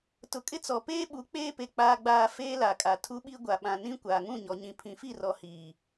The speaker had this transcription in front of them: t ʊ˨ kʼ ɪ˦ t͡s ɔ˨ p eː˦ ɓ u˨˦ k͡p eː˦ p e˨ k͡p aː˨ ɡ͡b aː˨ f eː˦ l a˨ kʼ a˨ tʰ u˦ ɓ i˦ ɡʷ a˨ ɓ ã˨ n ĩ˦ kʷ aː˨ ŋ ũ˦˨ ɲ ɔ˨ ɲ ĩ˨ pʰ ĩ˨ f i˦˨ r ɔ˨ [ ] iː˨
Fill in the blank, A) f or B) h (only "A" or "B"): B